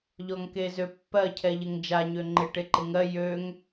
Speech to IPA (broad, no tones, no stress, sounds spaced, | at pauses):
ʎ ɔ ŋ k e z ø pː ɜ cʰ ɛ ʎ ɪ ŋ d͡ʒ a ɲ ø ŋ͡ǃ ɪ ʈ e ǃ ɪ ŋ ɜ j ø ŋ